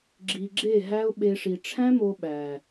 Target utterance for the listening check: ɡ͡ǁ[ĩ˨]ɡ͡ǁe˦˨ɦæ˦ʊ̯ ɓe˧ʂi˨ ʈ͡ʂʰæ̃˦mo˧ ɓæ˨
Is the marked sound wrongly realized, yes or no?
yes